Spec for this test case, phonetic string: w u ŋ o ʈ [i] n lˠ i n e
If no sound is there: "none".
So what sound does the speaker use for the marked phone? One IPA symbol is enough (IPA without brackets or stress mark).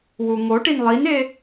i